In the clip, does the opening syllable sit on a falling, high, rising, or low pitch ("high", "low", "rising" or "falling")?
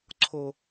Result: low